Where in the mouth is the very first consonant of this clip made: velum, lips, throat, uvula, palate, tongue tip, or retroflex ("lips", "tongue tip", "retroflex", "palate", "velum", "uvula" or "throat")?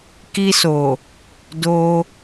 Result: velum